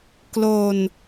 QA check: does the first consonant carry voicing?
no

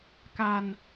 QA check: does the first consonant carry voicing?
no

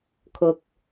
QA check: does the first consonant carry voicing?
no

